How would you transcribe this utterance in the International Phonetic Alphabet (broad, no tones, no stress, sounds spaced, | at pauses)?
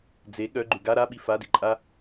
d͡z e ɠ œ ɡ͡ǃ ʉ ɡ a ɾ a ɓ i f a d i ǃʼ a